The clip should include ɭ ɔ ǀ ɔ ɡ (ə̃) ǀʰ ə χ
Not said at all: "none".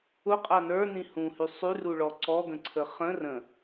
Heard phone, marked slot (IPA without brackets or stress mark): ə̃